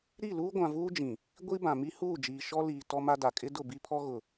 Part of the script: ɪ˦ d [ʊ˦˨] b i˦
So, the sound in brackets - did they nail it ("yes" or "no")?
yes